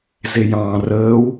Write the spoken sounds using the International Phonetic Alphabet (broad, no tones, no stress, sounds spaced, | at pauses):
z e j ɑ̃ː r əː w